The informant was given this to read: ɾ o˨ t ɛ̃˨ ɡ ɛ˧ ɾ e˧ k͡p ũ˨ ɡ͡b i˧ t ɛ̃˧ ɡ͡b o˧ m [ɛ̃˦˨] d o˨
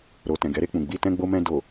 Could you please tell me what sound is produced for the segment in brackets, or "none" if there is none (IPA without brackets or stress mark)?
ɛ̃˧